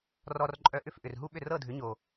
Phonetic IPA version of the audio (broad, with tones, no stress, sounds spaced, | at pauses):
r ɔ˧ r ǃʼ œ˧ ʔ ʏ˥˩ f ʔ ʏ˩ r ɦ u˥ ɓ ʏ˥˩ r ɤ˥˩ dʱ ʏ˩˥ ɲ o˩